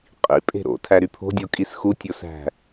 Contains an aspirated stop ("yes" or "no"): yes